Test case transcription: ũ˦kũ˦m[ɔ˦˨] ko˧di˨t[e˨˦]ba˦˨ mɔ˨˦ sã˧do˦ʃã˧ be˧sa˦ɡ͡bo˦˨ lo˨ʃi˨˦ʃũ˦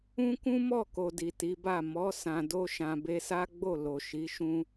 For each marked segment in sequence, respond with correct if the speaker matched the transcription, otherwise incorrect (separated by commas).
correct, incorrect